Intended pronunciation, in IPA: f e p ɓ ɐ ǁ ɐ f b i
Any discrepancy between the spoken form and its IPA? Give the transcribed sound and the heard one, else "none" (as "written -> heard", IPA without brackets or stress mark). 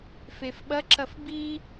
p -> f